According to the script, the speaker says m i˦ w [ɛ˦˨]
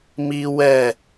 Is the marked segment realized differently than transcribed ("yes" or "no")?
no